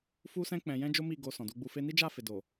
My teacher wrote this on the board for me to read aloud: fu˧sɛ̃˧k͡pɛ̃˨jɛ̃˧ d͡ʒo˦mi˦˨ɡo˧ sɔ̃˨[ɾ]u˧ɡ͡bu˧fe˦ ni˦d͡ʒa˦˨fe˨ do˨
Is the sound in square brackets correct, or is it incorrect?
incorrect